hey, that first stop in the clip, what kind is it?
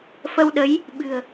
implosive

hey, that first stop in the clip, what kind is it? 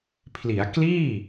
aspirated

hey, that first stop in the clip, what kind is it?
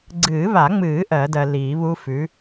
click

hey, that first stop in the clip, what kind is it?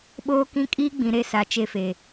implosive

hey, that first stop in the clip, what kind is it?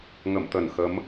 plain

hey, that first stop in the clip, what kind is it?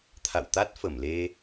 aspirated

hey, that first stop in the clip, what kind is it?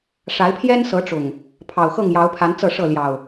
aspirated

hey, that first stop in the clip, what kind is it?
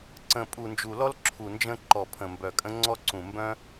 click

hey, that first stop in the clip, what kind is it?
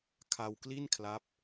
aspirated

